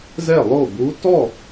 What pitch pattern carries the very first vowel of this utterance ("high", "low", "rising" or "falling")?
falling